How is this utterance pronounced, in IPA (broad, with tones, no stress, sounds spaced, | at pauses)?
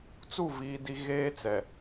t͡s u˦˨ v iː˦ d i˦ ɣ eː˦ t͡s ɛ˨